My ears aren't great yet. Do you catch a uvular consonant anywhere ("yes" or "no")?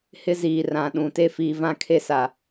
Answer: no